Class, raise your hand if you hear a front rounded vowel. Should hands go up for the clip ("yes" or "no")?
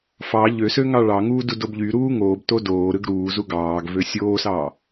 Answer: yes